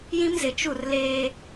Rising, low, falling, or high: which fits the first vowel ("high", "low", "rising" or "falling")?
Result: high